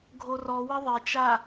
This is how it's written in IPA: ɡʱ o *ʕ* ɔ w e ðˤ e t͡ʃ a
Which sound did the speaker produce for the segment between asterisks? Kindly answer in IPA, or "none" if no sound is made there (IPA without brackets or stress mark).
r